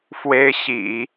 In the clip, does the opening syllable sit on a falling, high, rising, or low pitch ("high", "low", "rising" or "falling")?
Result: high